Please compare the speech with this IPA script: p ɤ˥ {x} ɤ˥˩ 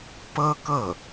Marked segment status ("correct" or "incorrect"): incorrect